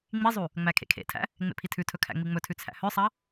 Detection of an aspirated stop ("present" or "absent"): present